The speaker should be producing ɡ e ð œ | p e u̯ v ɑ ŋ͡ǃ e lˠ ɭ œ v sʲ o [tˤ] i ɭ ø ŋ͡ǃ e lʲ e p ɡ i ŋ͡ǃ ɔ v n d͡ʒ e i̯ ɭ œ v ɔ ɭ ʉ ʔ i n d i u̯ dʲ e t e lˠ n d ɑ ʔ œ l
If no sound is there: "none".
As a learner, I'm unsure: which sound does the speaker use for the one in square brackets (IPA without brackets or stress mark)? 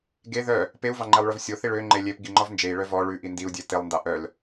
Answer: θ